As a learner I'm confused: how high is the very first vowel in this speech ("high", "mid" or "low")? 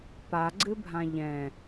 low